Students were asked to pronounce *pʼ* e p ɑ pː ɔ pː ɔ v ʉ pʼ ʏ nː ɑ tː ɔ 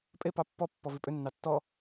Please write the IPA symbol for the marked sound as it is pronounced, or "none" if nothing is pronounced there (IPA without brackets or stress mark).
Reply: pʼ